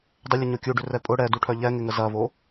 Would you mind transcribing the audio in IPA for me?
dˤ ʏ lʲ ə ɲ o kʲ u ɖ ʏ r ɛ pʼ ʊ ɽ ɛ d u ʈʰ œ ʎ ɛ ŋ ɪ ŋ ə z ɐ v o

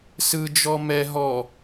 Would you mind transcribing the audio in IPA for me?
s ɯ d͡ʒ ɔ m ɛ ɦ ɔ

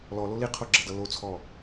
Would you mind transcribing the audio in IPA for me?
l ɔ l o l i qʰ o ɡ͡ǁ ʌ d ʌ l o t͡sʰ ɔ

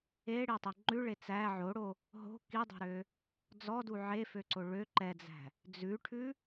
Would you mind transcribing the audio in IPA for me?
e ɽ e tˤ e ŋ͡ǃ ʉ ɭ e t͡s æ ʕ o ɽ o | ɦ o̤ k i dˤ o̤ ɾ ø | d͡z ɔ d u ʕ e f ø ǀ o ɭ ø ǃ ɛ d͡z æ̤ | d͡z ʉ ʈʰ ʉ

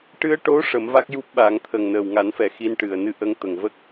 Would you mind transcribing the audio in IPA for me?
ʈ ɨ˧ ə̯ ʈ o˧˥ ʂ ə˨˩˦ m v a˦˥ k̚ j u˦˥ p̚ ɓ a˨˩˦ ŋ t̪ʰ ə˨˩ ŋ n əː˨˩ w ŋ a˨˩˦ n f ɛ˨˩ x i˧ n ʈ ɨ˨˩ ə̯ n ɨ˧ ʔ ə˧ ŋ t̪ ə˨˩ ŋ v ə˦˥ k̚

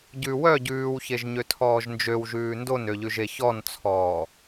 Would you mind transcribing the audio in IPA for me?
ɟ ʉ w œ ɟ ʉː w ç e ʒ ɲ ø tʰ ɔː ʒ n d͡ʒ ø w ʒ ʉː n d o n ø ʎ ʉ ʒ e ç ɔ n t͡sʰ ɔː

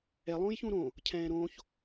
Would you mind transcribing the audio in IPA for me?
ɛ lˠ õː j ç ũ ɾ õ | cʰ ɛ̃ː ɾ õː ç

